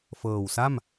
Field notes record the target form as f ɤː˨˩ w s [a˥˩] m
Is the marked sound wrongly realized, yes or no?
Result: no